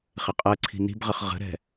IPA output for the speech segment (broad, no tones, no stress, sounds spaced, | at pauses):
χ ɪ qʼ ɜ ǀʰ i̤ n i̤ b ʁ ə χ ʁ ə̤ ɾ ɛ̤